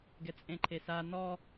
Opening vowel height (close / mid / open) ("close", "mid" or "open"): mid